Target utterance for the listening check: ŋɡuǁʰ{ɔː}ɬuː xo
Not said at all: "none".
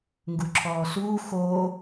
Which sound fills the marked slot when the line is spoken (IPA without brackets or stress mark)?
ɔː